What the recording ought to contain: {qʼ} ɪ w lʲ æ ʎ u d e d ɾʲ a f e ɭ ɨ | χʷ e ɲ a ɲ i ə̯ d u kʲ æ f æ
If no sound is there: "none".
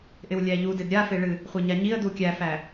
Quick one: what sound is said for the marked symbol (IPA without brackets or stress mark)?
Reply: ʔ